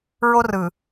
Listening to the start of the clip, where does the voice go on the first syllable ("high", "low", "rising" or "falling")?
high